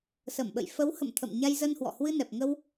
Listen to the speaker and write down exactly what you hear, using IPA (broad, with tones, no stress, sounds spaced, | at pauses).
s ə˧˩ m ɓ ə̰˧˨ j f ə˨˦ w h ə̰˧˨ m t̪ʰ ə̰˧˨ m ɲ a˧ j z ə˧ n h w ɔ̰˧˨ h w ɨ˧ n ɛ˨˩ p̚ ŋ ə˧ w